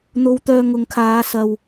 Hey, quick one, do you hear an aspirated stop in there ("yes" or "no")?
yes